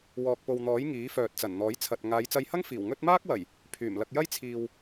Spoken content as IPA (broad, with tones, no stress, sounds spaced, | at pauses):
w ɔː˨ k̚ p o˨ w n̪ ɔː˨˥ j ŋ iː˨˥ f œː˨ t̚ t͡s ɐ˨˩ n n̪ ɔː˨˥ j t͡sʰ ɐ˨ t̚ ŋ aː˨˧ j t͡s ɐ˧ j h ɐ˥ ŋ f iː˨˩ w ŋ ɵ˥ t̚ m aː˥ k̚ w ɐ˨˩ j | pʰ yː˨˩ m l ɐ˧ k̚ j ɐ˥ j t͡sʰ iː˨ w